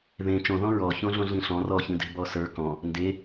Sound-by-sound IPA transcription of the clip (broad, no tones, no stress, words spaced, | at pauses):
ðẽ t͡ʃõðɔ̃ ɹɔ çõɮõɮĩɬɔ̃ rɔçĩde̤ bɔsə˞ kɔ̃ | nde